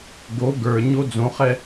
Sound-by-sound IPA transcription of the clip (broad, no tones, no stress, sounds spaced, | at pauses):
ɡ o ɡ ə˞ ɲ o d͡z õ χ ɛ